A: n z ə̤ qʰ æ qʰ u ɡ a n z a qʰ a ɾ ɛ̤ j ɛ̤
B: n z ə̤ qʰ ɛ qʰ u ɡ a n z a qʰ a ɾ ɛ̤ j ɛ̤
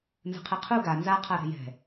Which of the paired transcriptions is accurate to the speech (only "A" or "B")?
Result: B